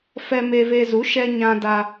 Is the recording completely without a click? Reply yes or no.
yes